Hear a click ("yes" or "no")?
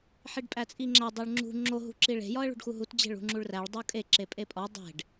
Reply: yes